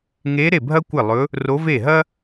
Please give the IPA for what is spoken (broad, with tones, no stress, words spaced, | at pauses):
ŋe˧˥ ɾe˥˩bʱɐ˥kʷɪ˥˩lˠɵ˧˥ | ro˧˥ve˥˩ ɦɐ˥